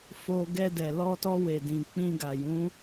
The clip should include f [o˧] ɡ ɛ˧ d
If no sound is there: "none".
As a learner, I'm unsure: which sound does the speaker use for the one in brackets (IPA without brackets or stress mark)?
o˧